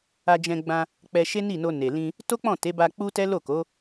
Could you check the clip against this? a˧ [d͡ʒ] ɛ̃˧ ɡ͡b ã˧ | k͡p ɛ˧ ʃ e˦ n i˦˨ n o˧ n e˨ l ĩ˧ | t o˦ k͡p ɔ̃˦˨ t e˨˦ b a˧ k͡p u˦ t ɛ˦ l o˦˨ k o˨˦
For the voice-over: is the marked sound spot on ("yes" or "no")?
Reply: yes